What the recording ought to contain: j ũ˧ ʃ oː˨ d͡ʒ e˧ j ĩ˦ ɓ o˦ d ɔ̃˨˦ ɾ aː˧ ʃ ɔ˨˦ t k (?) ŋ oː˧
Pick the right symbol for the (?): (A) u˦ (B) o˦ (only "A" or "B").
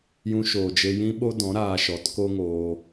B